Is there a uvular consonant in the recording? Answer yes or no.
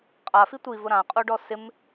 yes